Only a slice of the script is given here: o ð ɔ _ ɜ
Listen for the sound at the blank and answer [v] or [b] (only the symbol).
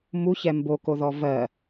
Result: v